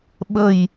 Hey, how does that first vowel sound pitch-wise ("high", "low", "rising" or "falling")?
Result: low